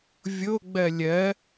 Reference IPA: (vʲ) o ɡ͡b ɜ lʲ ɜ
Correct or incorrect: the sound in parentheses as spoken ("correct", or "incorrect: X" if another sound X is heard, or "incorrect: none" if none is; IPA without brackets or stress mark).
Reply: correct